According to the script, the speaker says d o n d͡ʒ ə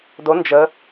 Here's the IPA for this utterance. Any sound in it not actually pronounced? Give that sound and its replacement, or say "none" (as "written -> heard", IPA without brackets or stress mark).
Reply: none